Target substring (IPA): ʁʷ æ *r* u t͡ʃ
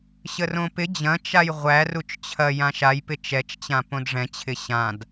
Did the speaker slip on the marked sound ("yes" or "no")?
no